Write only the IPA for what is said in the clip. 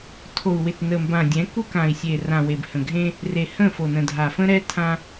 tʰ o˨ u̯ w ɪ˨ t n ə˨ m b ã˨ dʲ ɛ̃˨˦ k u˦ k ã˨ i̯ sʲ e˨ r ã˨ w e˨ b h ə̃˨ ɡʱ ẽ˦ | r e˨ h ə̃˦˨ f o˨ n ə̃˨ dʱ a˨ f ə̃˦ ɾ ɛ˦ tʰ ã˦

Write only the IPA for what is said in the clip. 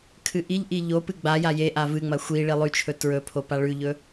kʰ ɨ ʔ i ʎ ʔ i ʎ o p ɨ ɡ͡b a j a j e ʔ a v ɨ ŋ͡m ɐ xʷ i ɭ i lˠ ʉ t͡ʃʰ ɵ t ɹ ɵ pʰ o p a ɭ ʉ ʎ ɵ

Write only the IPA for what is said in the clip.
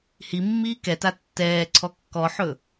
h i mː iː k ɛ t a tː ɛː ǀʰ ɔ kː ɔ ħ ɵ

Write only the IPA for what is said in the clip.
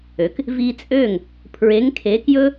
ø˩˥ k | v i˧ t͡sʼ ø˥˩ ŋ | pʰ ɹ e˩˥ ŋ kʰ e˩˥ k j ɵ˥

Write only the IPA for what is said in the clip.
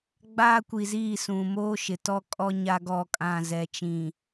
ɡ͡b aː˦ kʷ i˨ z iː˦˨ s ũ˨ m oː˦ ʃ ɪ˨ t ɔ˦ kʼ ɔ˦ ɲ a˦ ɡ ɔ˦˨ kʼ ã˦˨ z ɛ˨ t͡ʃ ĩ˨

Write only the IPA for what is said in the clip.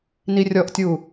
n i rʲ ɔ ʔ tʲ u

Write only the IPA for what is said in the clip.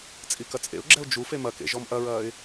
t͡sʼ i k ɐ t͡sʼ ḛ ʊ̯ ɡ͡ǁ ɛ ʊ̯ d͡ʒ u f e m ɐ k ḛ ʒ ɔ m ʔ ɐ ɹ ɐː ɪ̯

